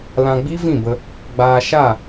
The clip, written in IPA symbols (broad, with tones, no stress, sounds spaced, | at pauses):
l ã˧ ɡ͡b i˦ v ĩ˦˨ b ə˧ | ɡ͡b aː˧ ʃ a˦˨